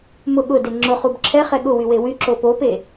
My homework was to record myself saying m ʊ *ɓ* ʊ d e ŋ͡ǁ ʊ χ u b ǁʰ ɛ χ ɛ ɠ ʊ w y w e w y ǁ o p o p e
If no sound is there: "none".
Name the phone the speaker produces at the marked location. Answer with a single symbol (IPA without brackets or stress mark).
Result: ɠ